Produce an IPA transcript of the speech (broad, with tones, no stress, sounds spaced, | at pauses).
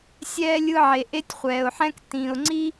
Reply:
sʲ ɛː˥ lʲ ɯ˦ ʕ e˩ ʔ e˦ tʲ χʷ ɛː˩ ʊ̯ ħ ɛ̃˦ k t ĩ˩ ʊ̯ ŋ͡ǀ i˥